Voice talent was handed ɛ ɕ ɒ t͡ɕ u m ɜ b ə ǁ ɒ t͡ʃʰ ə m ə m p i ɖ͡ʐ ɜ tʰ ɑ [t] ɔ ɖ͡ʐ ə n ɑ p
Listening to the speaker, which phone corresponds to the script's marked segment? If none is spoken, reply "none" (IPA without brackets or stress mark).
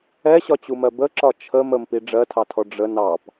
tʰ